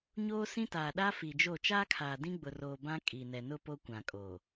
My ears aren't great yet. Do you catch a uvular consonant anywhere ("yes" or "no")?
no